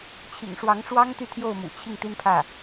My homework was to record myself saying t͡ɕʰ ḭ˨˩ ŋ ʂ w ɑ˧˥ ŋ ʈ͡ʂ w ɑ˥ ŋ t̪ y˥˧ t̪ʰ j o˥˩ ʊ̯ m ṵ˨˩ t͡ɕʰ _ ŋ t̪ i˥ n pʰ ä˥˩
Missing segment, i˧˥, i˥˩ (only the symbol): i˥˩